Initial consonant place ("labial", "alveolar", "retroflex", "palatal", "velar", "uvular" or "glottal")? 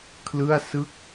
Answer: velar